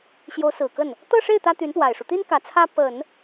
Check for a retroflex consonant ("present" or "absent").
present